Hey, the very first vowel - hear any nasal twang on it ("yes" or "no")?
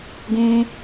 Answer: yes